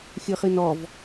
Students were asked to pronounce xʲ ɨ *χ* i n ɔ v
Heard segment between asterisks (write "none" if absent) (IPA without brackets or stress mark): χ